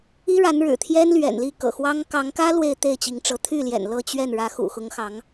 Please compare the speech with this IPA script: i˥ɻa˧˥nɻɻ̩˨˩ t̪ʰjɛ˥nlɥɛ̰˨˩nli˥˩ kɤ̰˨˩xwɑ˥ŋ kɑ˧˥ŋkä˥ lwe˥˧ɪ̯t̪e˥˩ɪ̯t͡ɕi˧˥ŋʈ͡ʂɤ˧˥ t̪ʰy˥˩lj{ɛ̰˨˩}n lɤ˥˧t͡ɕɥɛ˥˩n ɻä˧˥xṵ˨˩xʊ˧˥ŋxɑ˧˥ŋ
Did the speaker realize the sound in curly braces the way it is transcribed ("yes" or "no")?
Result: yes